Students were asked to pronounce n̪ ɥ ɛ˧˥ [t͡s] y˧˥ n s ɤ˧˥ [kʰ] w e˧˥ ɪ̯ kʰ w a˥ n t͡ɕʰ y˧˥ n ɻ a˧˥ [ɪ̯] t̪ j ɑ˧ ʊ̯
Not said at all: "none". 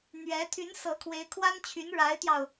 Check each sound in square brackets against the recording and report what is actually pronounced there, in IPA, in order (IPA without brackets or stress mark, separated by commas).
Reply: t̪ʰ, kʰ, ɪ̯